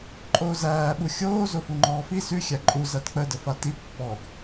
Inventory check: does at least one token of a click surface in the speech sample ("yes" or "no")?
yes